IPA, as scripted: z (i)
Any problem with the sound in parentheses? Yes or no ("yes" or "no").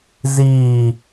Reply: yes